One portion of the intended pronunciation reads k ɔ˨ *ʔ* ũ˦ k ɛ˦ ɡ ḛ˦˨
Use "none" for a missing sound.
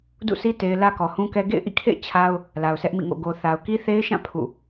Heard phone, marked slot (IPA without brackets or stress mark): h